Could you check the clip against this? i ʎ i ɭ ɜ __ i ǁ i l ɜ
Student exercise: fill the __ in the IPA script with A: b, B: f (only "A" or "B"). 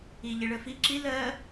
B